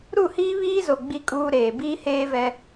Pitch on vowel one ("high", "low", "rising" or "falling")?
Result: falling